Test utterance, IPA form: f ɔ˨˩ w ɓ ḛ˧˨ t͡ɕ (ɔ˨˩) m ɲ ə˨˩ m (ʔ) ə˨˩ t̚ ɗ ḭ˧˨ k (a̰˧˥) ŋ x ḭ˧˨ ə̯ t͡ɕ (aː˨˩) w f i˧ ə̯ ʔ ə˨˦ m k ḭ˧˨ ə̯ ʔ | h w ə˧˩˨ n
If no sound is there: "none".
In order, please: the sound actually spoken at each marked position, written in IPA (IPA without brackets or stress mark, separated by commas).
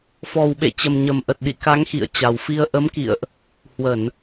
ə˨˩, ʔ, a˨˦, a˨˩